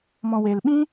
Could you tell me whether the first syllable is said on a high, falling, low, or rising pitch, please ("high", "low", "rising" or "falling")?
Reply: low